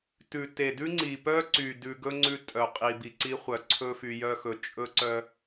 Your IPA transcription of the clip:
t ʉ˨ t e˨ d ʉ˦ ŋ͡ǀ i˨ p œ˦ ǀ y˨ d ʉ˨ ɡ ɵ˦ ŋ͡ǀ ʉ˦ tʼ œ˨ qʼ i˨ b i˨ ǀ i˦ χʷ œ˨ ǀʰ ɵ˦ f y˨ j œ˦ x ɵ˨ t͡ʃʼ ɵ˦ ǀ œ˦

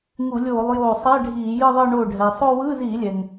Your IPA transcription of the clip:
ŋ u˧˩˧ lʲ oː˧˩˧ lˠ j oː˧˩ sˤ ɛ˧˥˧ ɖʱ iː˧˩˧ j ɯ˥˧ ðˤ ɤ˥˧ ɳ oː˧˩ ɖʱ ɛː˩ sˤ o˥˧ w ɯː˧˥˧ z iː˧˩˧ lʲ ɛ˩ ŋ

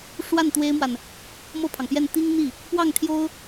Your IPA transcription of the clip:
ʂ w a˥˩ n t̪ w e˥ ɪ̯ m w a˨ n | m ɤ˥˩ pʰ ɑ˩ ŋ p j ɛ˥˩ n t̪ i˥ ŋ n̪ i˥˩ | p w ɑ˥˩ ŋ t̪ʰ j o˥ ʊ̯

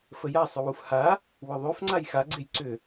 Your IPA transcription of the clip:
f ə j a sˤ ʏ w u f h a | w ʏ ðˤ ʉ f ŋ͡ǀ a j x a ɡ͡ǀ e j ǀ ʏ

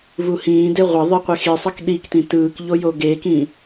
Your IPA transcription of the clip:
v u h ĩː d e ʁʷ ʌ ðˤ ɯ qʷ e x i sˤ ʌ k ɗ i k t ĩ t ɯː k ʎ o j o ɡ e k ĩ

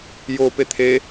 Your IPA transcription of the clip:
j o p e t̪ʰ e

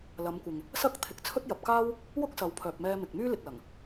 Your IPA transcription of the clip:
l ɐ˨˧ m kʷ ɪ˨ ŋ | s ɐ˥ k̚ t̪ʰ ɪ˨˥ k̚ t͡sʰ ɵ˥ t̚ j ɐ˨ p̚ k aː˥ w | w ʊ˥ k̚ s ɐ˨˧ w pʰ œː˨ p̚ m ɛː˧ m ɪ˨ k̚ m yː˥ l ɪ˨ k̚ l ɐ˨˩ ŋ

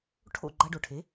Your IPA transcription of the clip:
ʈʰ o̰˥˩ ɡ͡ǃ a˧ ɖ o˩ ʈʰ e˩˥

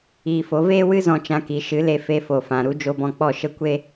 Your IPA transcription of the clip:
iː˧ f o˨˦ v eː˦ w ɨ˦ z ɔ̃˦ t͡ʃ ã˦ k i˨˦ ʃ ɨ˨˦ l e˧ f e˧ f o˨ f ã˨ ɾ u˦ d͡ʒ o˧ b ɔ̃˧ k͡p ɔ˦˨ ʃ ə˦ kʷ e˦

